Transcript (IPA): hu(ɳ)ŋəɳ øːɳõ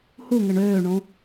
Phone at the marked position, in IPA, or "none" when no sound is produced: none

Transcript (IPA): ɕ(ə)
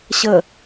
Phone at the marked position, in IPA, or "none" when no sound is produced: ə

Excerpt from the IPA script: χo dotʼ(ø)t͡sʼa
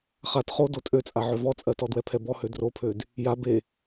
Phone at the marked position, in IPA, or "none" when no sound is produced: ø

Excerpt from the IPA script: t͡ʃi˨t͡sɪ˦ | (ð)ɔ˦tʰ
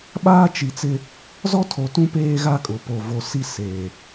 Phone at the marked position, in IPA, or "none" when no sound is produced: z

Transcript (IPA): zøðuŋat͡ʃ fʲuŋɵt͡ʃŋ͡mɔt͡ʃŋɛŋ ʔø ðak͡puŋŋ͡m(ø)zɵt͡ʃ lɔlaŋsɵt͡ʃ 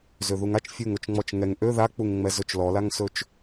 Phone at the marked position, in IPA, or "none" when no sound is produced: ɛ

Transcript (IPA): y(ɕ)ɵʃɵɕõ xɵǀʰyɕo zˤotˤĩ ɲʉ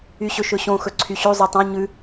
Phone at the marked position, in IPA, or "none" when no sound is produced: ɕ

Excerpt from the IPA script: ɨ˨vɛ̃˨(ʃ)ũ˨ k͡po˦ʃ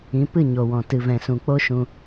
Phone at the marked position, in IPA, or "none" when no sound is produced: s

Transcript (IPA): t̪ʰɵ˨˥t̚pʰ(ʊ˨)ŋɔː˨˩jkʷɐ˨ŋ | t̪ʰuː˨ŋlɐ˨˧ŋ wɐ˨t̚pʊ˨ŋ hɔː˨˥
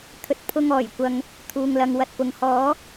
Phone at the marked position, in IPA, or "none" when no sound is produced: ʊ˧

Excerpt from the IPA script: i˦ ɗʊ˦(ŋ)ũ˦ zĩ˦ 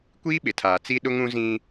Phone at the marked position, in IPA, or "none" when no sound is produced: ŋ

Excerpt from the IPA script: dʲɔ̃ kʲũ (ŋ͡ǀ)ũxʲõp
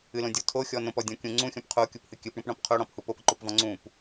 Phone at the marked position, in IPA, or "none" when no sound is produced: ŋ͡ǀ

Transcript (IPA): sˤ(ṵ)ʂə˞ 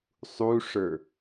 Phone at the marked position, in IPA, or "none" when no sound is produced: u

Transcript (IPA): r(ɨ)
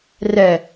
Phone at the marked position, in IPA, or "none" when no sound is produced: ɛ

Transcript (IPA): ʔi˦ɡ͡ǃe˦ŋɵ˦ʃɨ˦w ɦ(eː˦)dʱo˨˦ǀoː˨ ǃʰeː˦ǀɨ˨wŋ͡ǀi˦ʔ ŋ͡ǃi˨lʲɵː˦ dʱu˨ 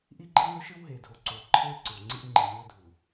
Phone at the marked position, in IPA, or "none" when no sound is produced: eː˨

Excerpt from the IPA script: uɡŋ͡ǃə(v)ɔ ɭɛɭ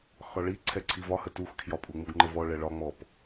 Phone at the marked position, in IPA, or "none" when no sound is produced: v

